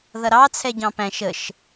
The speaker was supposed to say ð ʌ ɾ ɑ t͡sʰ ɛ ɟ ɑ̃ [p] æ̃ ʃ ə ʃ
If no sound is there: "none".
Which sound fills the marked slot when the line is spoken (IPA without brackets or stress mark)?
p